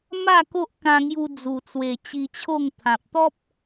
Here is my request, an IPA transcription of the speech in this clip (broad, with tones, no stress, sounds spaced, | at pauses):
m a˥˧ k o˦ ʔ k ã˧ ŋ j u˧ d͡z u˨˩ t͡s w e˨˩ t͡ɕ i˧ t͡ɕʰ o˥˧ ŋ t̪ʰ ã˨ p̚ t̪ ɔ˦ p̚